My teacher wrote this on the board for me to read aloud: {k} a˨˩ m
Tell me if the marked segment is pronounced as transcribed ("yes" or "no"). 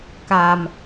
yes